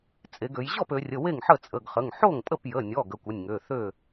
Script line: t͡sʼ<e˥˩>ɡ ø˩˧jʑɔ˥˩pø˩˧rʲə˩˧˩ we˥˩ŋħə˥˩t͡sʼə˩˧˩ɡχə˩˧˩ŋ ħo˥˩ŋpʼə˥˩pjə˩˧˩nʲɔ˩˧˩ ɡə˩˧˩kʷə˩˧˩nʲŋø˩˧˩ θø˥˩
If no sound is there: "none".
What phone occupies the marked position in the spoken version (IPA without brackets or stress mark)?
e˩˧